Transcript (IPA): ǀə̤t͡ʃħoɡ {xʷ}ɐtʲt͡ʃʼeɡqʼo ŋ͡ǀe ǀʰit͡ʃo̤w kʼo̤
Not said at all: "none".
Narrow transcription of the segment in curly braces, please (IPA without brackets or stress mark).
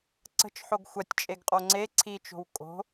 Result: xʷ